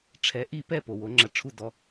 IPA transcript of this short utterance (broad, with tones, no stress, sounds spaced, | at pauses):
ʈ͡ʂʰ ɛ˩˥ ʔ i˥˩ p ɛ˥˩ p o˩ w o˩˥ ŋ͡ǁ ɐ˧ ʈ͡ʂʰ u˥˩ d ɔ˧